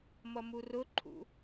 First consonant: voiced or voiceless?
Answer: voiced